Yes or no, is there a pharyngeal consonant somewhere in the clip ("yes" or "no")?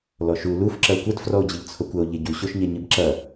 no